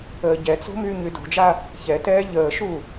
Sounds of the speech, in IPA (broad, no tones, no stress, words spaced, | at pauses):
əːɟɛt͡so̤ myːɲydo̤d͡ʒa | çɛtɛː ʎəːʃu